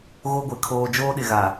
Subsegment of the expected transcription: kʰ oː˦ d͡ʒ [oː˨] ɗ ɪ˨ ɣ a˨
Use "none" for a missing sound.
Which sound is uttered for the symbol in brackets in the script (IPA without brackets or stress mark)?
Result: oː˦